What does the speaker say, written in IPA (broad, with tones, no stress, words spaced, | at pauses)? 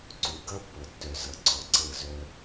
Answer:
ǀu˨ɡʌ˦ pːɤ˨tːœ˨ zʌ˨ ǀɔ˨ǀɤ˦˨zœ˦